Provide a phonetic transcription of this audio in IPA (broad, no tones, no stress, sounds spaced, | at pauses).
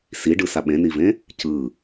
s i ɖ ɯ s a ɓ ẽ n i v ẽ | c ɯ